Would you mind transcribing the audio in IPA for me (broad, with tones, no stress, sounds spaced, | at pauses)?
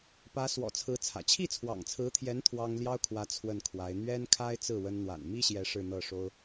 p ä˧˥ s w ɔ̰˨˩ t͡sʰ ɹ̩˧˥ t͡sʰ ä̰˨˩ t͡ɕʰ i˥˩ t͡sʰ w ɑ̰˨˩ ŋ t͡sʰ ɹ̩˧˥ t̪ʰ j ɛ˧˥ n t̪ʰ w ɑ˥ ŋ l j ɑ˥ ʊ̯ kʰ w ä˧˥ t͡sʰ w ə˥˩ n kʰ w a˧˥ ɪ̯ n̪ ɥ ɛ˥ n kʰ a˥ ɪ̯ t͡s ɹ̩˥˩ w ə˥ n n̪ w a̰˨˩ n m i˥ ɕ j ɛ˧˥ ʂ ɻ̩˥˧ n̪ ɤ˥˩ ʂ o˥ ʊ̯